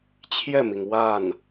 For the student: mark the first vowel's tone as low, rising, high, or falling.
falling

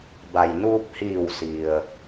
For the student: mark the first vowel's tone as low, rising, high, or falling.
low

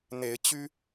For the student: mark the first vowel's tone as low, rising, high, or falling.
rising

